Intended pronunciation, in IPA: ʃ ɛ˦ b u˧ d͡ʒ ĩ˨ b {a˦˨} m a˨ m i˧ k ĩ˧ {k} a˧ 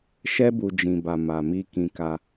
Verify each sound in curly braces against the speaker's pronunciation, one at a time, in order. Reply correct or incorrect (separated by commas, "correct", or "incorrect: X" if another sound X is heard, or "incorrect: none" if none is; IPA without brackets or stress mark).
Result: incorrect: a˨, correct